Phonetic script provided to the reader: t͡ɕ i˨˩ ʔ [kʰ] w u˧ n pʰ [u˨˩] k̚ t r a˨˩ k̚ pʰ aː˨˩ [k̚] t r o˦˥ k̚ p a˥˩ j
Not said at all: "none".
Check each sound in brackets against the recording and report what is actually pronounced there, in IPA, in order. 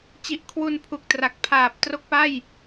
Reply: kʰ, u˨˩, p̚

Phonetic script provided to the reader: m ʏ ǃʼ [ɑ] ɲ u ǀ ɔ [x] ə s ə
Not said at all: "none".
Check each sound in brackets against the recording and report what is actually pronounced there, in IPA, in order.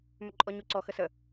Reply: ɔ, x

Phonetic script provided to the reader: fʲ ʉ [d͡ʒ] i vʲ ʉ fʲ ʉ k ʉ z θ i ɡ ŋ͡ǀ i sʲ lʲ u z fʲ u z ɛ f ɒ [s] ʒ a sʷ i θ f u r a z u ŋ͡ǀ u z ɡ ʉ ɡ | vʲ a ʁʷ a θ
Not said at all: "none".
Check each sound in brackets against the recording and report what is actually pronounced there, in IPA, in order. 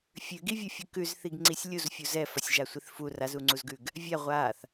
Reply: ɡ, sʲ

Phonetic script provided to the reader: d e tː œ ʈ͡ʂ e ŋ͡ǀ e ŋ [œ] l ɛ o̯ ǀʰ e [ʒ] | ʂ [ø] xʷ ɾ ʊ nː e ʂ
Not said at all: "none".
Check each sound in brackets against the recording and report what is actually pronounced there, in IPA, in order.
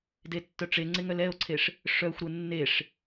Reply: œ, ʂ, œ

